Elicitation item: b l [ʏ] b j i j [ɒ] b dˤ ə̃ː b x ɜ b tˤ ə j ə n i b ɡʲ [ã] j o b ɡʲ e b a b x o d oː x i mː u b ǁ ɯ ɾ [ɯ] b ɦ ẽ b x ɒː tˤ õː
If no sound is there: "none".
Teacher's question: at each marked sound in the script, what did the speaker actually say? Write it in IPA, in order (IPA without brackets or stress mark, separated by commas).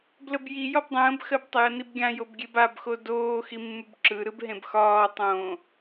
ə, ɒ, ã, ɯ